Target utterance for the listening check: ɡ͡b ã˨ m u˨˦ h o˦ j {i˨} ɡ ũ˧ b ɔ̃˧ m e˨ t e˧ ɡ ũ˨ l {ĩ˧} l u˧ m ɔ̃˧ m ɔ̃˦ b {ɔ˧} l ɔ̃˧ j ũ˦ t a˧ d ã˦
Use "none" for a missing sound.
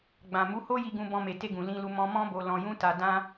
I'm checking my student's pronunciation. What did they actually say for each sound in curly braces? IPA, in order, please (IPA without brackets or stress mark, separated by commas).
i˧, ĩ˧, o˧